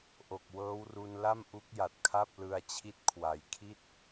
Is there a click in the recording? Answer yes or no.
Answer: no